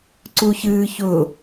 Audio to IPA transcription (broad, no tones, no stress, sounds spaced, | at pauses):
ǀ u ç ɨː ç ʊ